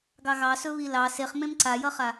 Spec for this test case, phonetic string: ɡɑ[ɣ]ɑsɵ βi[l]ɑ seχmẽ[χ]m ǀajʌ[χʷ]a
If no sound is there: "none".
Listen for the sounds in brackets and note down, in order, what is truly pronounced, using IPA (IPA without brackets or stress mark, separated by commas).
ɣ, l, none, χ